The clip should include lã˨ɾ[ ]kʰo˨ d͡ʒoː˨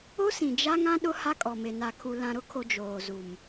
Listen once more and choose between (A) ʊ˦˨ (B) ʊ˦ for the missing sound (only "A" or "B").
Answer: B